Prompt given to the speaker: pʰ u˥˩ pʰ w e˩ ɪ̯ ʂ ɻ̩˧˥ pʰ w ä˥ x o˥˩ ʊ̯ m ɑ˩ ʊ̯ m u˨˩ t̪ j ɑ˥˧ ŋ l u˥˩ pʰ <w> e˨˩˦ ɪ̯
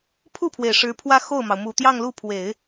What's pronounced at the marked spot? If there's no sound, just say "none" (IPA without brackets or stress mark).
w